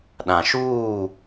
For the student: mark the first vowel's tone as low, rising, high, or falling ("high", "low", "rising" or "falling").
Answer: low